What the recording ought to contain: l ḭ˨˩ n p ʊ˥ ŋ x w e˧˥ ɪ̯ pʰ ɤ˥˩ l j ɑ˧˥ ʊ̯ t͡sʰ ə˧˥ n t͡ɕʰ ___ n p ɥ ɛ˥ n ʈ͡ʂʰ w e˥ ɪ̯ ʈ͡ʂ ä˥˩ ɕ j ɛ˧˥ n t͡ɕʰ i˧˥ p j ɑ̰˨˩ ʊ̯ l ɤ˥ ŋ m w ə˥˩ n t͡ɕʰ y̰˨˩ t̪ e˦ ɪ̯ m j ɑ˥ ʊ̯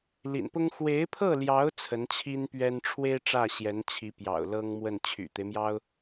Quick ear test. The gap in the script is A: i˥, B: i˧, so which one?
A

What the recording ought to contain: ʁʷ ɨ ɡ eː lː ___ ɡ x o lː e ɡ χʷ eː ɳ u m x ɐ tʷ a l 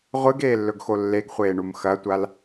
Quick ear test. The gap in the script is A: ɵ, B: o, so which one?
A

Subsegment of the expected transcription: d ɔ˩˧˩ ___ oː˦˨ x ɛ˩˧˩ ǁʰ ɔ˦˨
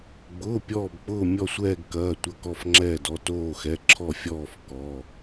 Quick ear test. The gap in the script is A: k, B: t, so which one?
B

